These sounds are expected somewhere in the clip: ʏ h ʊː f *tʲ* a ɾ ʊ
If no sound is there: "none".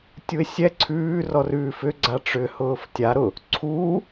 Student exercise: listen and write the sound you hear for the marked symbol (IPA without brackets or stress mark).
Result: tʲ